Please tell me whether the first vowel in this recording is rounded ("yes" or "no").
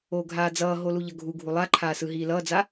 yes